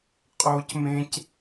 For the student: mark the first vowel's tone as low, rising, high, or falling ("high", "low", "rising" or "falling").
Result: high